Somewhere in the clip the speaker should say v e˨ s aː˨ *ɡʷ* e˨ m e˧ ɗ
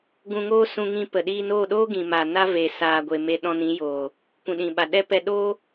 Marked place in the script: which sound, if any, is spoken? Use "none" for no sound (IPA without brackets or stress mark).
ɡʷ